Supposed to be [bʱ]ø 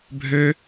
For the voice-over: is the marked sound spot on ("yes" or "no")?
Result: yes